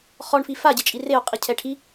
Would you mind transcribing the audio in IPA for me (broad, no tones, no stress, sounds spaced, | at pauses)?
χ ɔ ɳ f i f a ɟ e t͡ʃʼ i r e o̯ qʼ i cʰ ɛ ʈʰ i